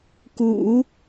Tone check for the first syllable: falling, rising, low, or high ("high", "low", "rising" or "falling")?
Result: low